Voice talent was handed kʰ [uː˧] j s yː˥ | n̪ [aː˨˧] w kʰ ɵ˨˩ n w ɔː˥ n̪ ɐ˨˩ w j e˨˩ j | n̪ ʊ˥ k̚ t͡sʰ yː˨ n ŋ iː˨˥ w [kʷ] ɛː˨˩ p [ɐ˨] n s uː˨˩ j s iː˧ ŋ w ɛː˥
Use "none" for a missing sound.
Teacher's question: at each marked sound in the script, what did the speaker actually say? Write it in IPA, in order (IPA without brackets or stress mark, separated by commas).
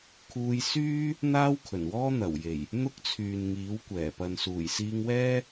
uː˧, aː˥, kʷ, ɐ˨